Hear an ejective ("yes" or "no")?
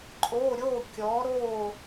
yes